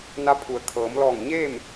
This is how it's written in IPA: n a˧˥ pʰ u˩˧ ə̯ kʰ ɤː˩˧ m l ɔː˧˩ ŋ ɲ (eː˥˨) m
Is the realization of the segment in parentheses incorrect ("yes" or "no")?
no